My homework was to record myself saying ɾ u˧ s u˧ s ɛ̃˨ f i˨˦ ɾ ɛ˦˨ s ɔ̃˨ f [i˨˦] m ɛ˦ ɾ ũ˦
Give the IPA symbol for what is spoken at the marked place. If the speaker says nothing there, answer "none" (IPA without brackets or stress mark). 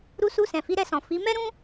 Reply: i˨˦